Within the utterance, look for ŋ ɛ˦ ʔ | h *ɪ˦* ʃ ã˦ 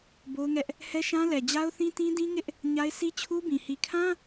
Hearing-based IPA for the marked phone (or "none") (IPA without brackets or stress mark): ɛ˦